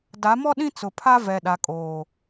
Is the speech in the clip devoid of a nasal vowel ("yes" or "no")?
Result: no